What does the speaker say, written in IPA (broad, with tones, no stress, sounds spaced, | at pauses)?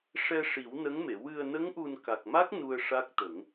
ʂ ɛ˧ ʂ i˨˩˦ w n ə˧˥ ŋ m e˨˩˨ w ɨ˨˩ ə̯ n ə˧˥ ŋ ʔ u˨˩ n k a˨˩ k̚ m a˦˥ k̚ n u˧ ə̯ ʂ a˦˥ k̚ t̪ ə˨˩˦ ŋ